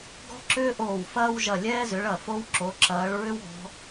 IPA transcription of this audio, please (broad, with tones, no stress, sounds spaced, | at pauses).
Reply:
ɡ ɔ̤˥ ǁ ʏː˥ ʔ oː˧˩ w f ɐː˥ w ʒ ɐ˧˩ lʲ ɛː˥ z ʏ˨˦ ɭ ɐ˧˩ f o˥ w ǁ o˨˦ ǁ ɐː˨˦ ɭ ɹ ʏ˥ w ɔ̤˨˦